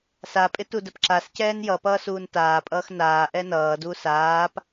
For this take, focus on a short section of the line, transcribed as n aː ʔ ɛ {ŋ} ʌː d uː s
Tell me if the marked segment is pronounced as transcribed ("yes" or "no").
no